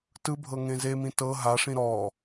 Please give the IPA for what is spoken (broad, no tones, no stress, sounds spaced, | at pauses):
t ɯ bʱ ɤ ŋ ẽ z e m ĩ t ɤ ɦ a ʂ ĩ ɾ ɔ